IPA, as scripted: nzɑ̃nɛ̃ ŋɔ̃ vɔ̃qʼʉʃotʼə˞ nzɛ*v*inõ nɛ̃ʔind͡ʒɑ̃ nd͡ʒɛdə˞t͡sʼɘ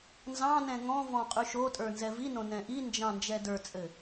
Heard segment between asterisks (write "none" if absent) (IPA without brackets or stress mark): v